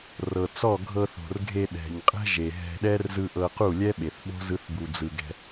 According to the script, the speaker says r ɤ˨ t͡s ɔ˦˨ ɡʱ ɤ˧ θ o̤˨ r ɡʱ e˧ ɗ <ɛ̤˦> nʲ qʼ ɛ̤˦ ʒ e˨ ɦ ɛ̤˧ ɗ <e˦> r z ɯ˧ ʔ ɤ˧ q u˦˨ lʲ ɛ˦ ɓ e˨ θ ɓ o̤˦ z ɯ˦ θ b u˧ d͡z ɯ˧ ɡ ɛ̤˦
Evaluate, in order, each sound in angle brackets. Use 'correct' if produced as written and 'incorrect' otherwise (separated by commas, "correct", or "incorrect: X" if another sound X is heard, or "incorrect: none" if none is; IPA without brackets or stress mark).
incorrect: ɛ̤˨, incorrect: ɛ˦